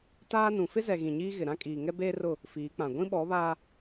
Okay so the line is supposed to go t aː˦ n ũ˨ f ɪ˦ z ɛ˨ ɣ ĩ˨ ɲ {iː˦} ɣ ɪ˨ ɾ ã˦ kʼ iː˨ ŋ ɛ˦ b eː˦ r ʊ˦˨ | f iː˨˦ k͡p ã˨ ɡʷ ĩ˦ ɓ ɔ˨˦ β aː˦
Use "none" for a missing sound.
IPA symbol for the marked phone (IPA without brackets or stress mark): iː˦